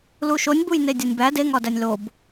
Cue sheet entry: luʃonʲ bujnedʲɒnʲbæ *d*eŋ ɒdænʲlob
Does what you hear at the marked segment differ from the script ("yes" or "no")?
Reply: no